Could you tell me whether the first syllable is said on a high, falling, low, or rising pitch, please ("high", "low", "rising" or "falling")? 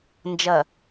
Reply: low